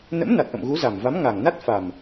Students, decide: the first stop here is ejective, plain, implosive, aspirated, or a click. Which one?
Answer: plain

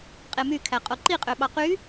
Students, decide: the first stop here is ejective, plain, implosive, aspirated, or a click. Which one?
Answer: ejective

